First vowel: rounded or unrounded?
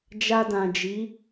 unrounded